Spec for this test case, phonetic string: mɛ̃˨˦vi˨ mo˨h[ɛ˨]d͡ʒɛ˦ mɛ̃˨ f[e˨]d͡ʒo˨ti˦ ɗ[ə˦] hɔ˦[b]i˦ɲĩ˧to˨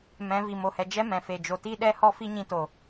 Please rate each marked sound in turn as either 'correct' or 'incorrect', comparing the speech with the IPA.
correct, correct, incorrect: ɛ˦, incorrect: f

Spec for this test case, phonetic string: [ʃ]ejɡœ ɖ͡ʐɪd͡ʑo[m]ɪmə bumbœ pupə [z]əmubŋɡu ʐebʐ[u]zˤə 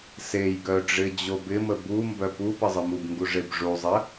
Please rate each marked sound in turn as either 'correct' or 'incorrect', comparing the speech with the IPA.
incorrect: s, incorrect: b, incorrect: zˤ, correct

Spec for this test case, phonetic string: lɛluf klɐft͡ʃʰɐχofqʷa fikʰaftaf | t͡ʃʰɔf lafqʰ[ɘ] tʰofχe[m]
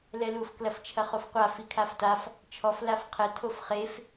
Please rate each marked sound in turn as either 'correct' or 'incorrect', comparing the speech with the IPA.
correct, incorrect: f

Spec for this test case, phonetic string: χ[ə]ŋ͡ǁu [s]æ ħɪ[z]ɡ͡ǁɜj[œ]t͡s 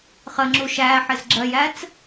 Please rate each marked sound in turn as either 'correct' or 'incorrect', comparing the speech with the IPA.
correct, incorrect: ʃ, correct, incorrect: æ

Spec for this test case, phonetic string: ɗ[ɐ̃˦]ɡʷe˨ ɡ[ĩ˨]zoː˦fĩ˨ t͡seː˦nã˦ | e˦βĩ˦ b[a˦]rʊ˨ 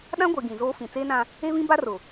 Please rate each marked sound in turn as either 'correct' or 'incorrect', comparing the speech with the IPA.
incorrect: ã˦, correct, correct

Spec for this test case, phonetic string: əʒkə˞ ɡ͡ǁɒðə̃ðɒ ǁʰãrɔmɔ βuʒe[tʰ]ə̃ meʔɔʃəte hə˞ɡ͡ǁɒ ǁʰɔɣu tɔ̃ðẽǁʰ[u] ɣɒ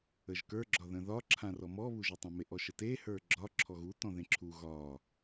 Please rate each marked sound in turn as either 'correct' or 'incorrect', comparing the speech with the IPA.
incorrect: tˤ, correct

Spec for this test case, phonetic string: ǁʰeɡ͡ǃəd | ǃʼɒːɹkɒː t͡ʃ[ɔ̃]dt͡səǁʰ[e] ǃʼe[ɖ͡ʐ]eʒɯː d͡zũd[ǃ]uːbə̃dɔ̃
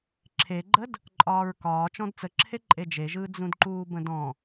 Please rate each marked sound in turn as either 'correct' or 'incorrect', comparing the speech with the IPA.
correct, correct, incorrect: d͡ʒ, correct

